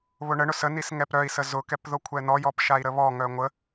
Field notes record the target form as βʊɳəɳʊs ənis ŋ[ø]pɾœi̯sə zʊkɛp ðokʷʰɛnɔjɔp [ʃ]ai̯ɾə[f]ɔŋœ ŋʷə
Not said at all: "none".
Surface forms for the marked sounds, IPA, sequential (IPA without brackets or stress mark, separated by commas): ɛ, ʃ, β